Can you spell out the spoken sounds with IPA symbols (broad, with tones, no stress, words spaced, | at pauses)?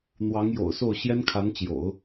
n̪wɑ˧˥ŋjo̰˨˩ʊ̯so˥˩ʊ̯ ɕjɛ˥nkʰa˧˥nt͡ɕjo̰˨˩˦ʊ̯